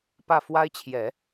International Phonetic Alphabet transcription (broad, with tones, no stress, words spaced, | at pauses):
pä˥˩fwa˥ɪ̯t͡ɕʰjɛ˨˩˦